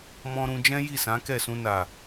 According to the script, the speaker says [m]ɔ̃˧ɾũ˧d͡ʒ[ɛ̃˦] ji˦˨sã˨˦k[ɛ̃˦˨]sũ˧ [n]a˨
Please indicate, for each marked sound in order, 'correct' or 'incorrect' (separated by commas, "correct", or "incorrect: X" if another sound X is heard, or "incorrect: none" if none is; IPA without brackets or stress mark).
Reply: correct, correct, incorrect: ɛ˦˨, correct